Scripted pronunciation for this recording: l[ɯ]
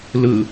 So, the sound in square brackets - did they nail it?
yes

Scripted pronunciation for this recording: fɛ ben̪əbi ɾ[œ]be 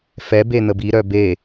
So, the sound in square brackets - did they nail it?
yes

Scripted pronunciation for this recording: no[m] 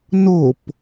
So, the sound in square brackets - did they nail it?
no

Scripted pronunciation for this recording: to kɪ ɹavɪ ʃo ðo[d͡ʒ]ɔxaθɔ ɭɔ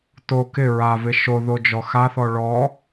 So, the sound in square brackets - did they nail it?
yes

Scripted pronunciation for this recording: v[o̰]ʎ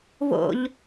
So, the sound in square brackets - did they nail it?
yes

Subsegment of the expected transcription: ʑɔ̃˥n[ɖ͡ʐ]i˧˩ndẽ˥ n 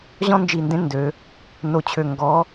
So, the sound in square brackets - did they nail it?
no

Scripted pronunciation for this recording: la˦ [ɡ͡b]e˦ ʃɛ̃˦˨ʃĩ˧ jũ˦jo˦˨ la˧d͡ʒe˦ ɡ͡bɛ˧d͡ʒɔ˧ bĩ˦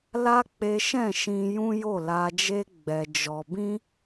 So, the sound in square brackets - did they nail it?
no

